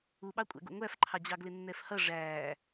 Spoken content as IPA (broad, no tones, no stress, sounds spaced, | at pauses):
u ɓ ɑ kʷʼ æ̰ ɡ ṵ ŋʷ æ f ǃʰ ɑ d͡ʑ ɑ ɡ l ɪ nː ɛ f h ʌ ʐ æː